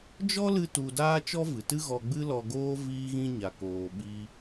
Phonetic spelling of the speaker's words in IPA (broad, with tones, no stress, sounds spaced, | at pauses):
d͡ʒ ɔ˦ l ɨ˧ t u˨ d aː˦ t͡ʃ ɔ˦ v ɨ˨ t ɨ˦ ɣ ɔ˧ ɡ͡b ɨ˦ l ɔ˧ ɡ oː˦ v iː˦ ɣ ĩ˦ ɲ a˨ k oː˨ ɓ i˧